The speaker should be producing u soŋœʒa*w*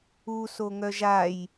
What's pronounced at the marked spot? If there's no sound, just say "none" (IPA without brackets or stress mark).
j